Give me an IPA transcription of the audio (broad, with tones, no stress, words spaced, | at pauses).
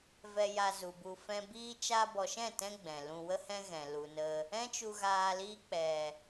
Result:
vɛ˧ja˧zu˨bu˧ fɛ̃˧biː˦ t͡ʃa˧bɔ˨ʃɛ̃˦˨ tɛ̃˦ɡ͡bɛ̃˨ lũ˧wə˦hɛ̃˦ ɣɛ̃˨ lu˨nə˧ | ɛ̃˦t͡ʃu˧ɣaː˧ liː˧k͡pɛ˨